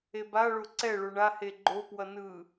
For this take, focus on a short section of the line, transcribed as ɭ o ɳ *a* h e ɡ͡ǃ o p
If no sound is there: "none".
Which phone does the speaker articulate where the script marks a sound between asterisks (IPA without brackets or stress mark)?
a